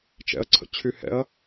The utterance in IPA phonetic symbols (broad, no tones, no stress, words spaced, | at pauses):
t͡ʃɛ̰ɐ̯ǀʰə̰t͡ɕʰy hɛ̰ɐ̯